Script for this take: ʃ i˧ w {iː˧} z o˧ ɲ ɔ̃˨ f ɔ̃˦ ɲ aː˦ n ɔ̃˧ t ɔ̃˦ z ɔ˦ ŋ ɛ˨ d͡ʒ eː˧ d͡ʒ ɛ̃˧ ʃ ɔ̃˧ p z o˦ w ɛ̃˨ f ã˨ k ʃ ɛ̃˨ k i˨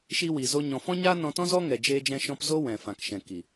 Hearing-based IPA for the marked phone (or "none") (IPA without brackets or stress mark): iː˨